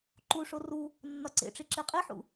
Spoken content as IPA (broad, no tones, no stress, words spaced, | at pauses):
ǃuʂo ru | nːɒǀḛʈ͡ʂi ǁeqʼiħṵ